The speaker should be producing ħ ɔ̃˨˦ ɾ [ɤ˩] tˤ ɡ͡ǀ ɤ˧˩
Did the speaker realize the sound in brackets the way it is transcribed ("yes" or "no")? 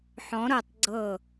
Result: yes